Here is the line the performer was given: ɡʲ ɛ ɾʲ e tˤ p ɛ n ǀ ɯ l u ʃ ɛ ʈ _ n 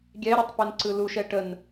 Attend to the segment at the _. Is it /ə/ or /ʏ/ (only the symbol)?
ə